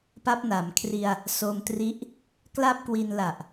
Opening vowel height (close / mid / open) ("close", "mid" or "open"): open